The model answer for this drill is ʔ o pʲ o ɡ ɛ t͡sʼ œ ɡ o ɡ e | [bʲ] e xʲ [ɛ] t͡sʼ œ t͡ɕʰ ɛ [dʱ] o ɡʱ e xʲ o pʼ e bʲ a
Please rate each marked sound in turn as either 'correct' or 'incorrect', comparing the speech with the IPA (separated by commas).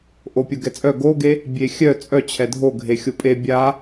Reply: correct, incorrect, correct